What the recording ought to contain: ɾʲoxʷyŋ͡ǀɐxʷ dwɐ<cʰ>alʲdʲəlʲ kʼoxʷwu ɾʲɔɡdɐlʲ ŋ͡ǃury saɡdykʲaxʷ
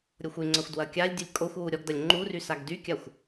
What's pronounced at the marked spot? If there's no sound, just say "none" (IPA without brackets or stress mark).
kʲ